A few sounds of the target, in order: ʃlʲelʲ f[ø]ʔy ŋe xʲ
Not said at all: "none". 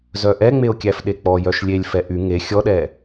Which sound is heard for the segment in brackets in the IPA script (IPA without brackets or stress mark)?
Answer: ɛ